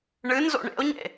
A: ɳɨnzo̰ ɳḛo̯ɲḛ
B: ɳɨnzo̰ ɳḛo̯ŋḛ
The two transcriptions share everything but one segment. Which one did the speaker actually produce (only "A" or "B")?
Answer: A